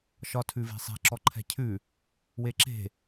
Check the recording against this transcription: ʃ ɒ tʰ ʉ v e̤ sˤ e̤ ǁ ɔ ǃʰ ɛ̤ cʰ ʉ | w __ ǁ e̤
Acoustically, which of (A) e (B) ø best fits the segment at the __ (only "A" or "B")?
A